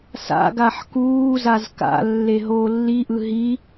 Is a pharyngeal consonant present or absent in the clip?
present